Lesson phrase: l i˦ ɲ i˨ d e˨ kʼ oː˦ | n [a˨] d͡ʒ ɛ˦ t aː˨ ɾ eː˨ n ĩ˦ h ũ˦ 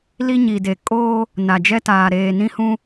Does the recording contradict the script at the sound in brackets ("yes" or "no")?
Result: no